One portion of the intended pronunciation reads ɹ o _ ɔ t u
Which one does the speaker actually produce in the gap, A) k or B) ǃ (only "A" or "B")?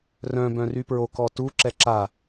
A